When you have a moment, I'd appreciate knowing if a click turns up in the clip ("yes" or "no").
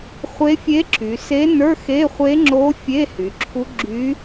yes